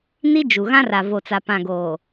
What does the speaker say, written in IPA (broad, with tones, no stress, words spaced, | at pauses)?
ni˦d͡ʒu˨ ɣã˦ra˨vo˨t͡sa˨ pã˨ɡoː˨